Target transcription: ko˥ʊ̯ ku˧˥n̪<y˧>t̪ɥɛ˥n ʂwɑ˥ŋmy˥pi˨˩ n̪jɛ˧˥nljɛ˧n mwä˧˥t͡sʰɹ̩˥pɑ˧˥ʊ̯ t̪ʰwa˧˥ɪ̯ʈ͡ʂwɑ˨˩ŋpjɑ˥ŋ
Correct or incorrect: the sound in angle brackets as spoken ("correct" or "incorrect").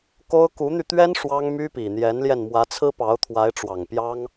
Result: correct